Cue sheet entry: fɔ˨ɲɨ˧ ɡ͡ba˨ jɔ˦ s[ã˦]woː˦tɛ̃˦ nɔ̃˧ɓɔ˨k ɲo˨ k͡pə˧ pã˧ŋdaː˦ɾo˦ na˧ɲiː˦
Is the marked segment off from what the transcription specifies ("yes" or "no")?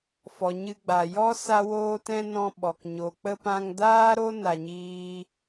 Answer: yes